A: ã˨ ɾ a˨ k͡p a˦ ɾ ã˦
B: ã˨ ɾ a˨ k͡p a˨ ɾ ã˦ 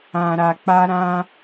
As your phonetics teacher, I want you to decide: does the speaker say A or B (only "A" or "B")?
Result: A